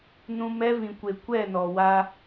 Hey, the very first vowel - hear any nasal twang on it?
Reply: yes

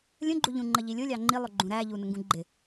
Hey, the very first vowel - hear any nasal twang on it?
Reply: yes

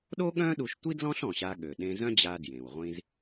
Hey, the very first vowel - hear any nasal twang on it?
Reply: no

